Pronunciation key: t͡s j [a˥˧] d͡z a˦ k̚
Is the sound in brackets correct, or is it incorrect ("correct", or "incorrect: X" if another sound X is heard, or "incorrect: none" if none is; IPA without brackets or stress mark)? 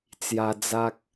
incorrect: a˧